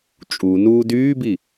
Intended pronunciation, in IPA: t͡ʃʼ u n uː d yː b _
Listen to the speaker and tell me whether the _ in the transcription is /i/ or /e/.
i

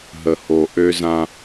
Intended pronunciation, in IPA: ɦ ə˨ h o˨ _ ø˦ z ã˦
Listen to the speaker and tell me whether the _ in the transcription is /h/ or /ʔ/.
ʔ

